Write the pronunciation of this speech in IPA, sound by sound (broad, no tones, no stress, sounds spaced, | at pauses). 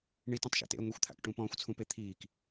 ɳ i t ɔ̃ tˤ ʃ a̰ t ḛ ə̯ ŋʷ i xʷ t̪ʰ a̰ k ʈ ũ p ɔ̃ː xʷ t͡sʰ ũ p e t̪ʰ iː k